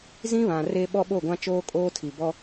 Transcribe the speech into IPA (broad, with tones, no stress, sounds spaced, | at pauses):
z ĩ˦ β ã˨ r e˦ ɓ ɔ˦ ɓ o˦˨ ɡʷ ã˦ t͡ʃ oː˦ kʼ oː˦ tʰ i˨ b ɔ˦